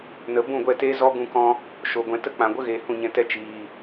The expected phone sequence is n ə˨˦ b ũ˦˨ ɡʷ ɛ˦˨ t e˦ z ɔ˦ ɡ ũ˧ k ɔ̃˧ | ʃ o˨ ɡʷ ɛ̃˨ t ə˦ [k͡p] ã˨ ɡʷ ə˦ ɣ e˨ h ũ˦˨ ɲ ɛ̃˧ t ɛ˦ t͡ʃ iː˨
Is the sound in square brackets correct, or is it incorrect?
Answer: correct